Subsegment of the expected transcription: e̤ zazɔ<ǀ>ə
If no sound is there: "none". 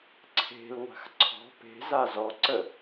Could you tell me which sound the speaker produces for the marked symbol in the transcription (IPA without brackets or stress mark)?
ǀ